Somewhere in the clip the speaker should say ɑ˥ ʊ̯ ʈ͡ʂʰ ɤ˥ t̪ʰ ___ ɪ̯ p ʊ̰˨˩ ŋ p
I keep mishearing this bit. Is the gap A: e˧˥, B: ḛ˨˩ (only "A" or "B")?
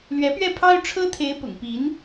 A